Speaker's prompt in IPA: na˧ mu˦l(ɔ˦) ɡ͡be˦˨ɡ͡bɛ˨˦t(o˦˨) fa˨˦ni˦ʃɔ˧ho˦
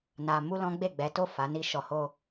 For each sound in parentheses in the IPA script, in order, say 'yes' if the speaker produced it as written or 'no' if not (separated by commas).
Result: no, yes